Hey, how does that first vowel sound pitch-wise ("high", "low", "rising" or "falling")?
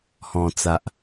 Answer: low